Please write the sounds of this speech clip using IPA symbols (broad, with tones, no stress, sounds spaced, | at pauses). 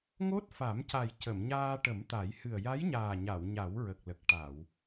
ŋ o˦˥ t̚ f a˨˩˦ m c a˨˩ j c ə˨˩˨ m ɲ aː˧ ʈ ə˨˩˦ m t̪ a˨˩˦ j h ɨ˨˩ ə̯ j a˧˥ j ɲ aː˨˩ ɲ a˨˩˨ w ɲ a˨˩˦ w ɹ ə˨˩ k̚ l ə˨˩ k̚ ʈ a˨˩˨ w